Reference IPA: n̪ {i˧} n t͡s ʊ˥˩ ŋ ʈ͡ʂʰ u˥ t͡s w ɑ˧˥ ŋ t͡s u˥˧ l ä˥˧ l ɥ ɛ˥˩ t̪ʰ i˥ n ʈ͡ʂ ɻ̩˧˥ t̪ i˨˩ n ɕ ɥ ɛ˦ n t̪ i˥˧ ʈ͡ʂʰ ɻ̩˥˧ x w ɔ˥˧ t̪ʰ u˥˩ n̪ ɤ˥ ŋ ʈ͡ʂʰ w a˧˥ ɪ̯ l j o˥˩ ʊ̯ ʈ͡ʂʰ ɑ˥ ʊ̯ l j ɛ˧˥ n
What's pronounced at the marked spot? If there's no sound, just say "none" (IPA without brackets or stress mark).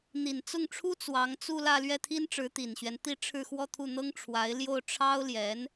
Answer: i˨˩